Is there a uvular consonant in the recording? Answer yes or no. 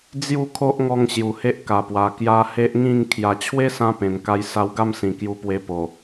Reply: no